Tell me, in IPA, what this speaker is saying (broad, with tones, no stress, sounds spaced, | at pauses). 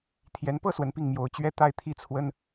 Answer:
t̪ʰ j ɛ˧˥ n p ɤ˥˩ s w ə˧˥ n p i˥˩ ŋ m j o˧˥ ʊ̯ t͡ɕ ɥ ɛ˥ t̪ a˥˩ ɪ̯ t̪ʰ i˥ t͡sʰ w ə˥ n